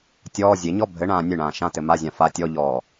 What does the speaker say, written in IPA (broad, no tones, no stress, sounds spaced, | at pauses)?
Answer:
tʲ ɔː zʲ e ɲ ɔ bʱ ɘ ɳ ãː nʲ ɨ ɳ ãː ʃ ã t ɘ m a zʲ ã f a tʲ ɔ ʎ ɔː